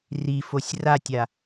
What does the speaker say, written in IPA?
rifosʲ ratʲa

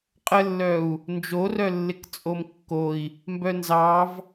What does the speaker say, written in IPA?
qʼəlːœu̯ | nd͡ʒorœ lːɪkt͡sʼomkːoi̯ | mbœnzɑv

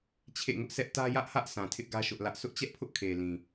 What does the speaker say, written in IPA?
t͡ɕʰḛ˦˨ŋʊ˦ʔsʰɛ˦ʔ tä˦jä˦ʔhä˦ʔ sʰã˨tʰɪ˦ʔɡä˦ ʃʊ˦ʔlä˦ʔ sʰʊ˦ʔt͡ɕɛ˦ʔpʰʊ˦ʔ kʰe˨lĩ˨

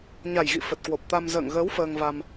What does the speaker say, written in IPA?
ɲa˨˩jɣḭ˧˨ fə˨˩t̚kwo˨˩p̚t̪a˧m zə̰ː˧˨ŋɣəː˨˦w fəː˧ŋva˧m

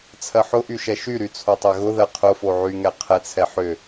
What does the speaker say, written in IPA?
t͡sʰɜħʊʔy ʃɛʃyɾy t͡sʰotˤɛɣʊðɜ qʰʊfo ʕyŋɛ qʰɛt͡sʰɛ ħʏ

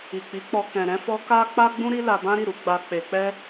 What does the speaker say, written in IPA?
i˨k͡pi˨˦k͡pɔ˧ kɛ̃˨ ɾɛ̃˧fɔ˧ ka˦ k͡pa˦ɡ͡bũ˦ ɾi˦la˧bã˦ɾi˦˨ ɾu˨˦ ɡ͡ba˧ k͡pe˧k͡pɛ˦

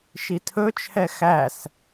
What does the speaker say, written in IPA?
ʃitʰɵt͡ʃʰɛ xæs

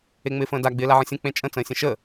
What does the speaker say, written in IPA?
eŋ͡mɪːfə̃ːda ɡ͡bɪːlaʕə̃sʲə̃ k͡pẽt͡ʃʼə̃ t͡sə̃ːsʲə̃ʃə

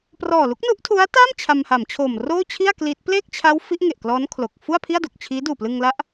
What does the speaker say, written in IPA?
prɔː˨˩ lu˦˥k̚nu˦˥ʔtʰu˦˥a̯taː˥˩m t͡ɕʰa˧mha˩˦mt͡ɕʰoː˨˩m roː˥˩t͡ɕʰi˥˩a̯ kliː˦˥t̚ pleː˥˩k̚t͡ɕʰa˦˥w fi˦˥ʔŋe˨˩ʔklɔː˦˥n kʰlo˨˩k̚ fu˥˩a̯pʰi˥˩a̯do˨˩k̚t͡ɕʰiː˦˥ duː˨˩plɯ˧ŋla˦˥ʔ

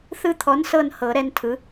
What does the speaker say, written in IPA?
θɯ˦t̪ʰɔ˨˥nsɤ˦˨n hɤ˨˩˦ɾɛ˦ntʰɯ˨˥

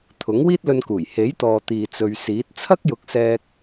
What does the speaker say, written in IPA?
t̪ʰʊ˨˥ŋ wiː˥t̚lɵ˧nkuː˨˩j he˨˥jt̪ɔː˨ t̪iː˨t͡sɵ˨ɥsiː˨˥t̚ t͡sʰɐ˥k̚jʊ˨˥k̚sɛː˧k̚

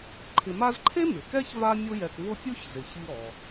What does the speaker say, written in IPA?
ǃʰɪ˨ma˦zǃʰe˥ mɪ˩ kɛ˥ç va˦mʲʊ˦jɛ˨kvʊ˦ pʲʊ˥ç zɪ˩çi˦ ɾɔ˩

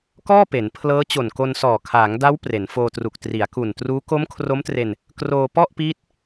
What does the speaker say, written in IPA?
kɔː˥˩pe˩˦npʰlɤː˦˥t͡ɕo˨˩n ko˧nsɔː˨˩ kʰaː˩˦ŋda˦˥w pre˩˦nfoː˧tru˨˩k̚ tri˩˦a̯ku˨˩n truː˦˥ ko˦˥mkʰro˦˥mtre˧n | kroː˧pɔ˥˩ʔpiː˦˥t̚

